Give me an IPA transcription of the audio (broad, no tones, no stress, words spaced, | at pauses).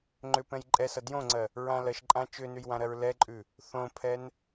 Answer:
ŋ͡ǃʏpɛ̃j ǃʼɛsʌ djõŋ͡ǀɜ | ɹãlɜʃǃʼã t͡ʃʏnʉj wãɾɜɹlɛǃʼʉ | θõpʰɛn